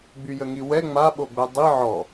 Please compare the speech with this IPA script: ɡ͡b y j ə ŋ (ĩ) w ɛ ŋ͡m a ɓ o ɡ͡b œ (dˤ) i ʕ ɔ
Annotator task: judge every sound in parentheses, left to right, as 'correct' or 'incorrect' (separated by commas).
incorrect, correct